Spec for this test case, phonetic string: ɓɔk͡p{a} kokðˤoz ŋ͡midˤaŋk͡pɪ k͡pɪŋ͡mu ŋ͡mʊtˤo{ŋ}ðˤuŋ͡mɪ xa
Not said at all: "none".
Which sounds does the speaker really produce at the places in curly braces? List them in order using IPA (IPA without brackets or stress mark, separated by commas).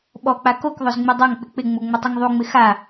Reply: a, ŋ